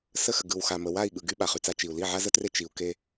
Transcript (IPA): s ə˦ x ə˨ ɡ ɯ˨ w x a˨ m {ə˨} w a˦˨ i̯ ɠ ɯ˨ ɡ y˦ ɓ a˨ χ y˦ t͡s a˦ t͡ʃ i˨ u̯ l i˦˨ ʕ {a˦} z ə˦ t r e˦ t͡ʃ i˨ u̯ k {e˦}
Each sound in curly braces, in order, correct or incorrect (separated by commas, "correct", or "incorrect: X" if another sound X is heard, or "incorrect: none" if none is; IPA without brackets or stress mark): correct, correct, correct